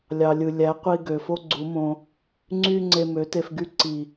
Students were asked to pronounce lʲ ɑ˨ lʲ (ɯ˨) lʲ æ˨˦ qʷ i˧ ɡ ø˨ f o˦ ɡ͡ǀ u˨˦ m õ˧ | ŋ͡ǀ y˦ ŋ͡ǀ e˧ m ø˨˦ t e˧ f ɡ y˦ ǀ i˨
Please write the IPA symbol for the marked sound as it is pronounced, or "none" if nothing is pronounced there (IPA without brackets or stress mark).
ɯ˨